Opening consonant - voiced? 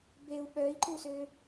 yes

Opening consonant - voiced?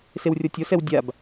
no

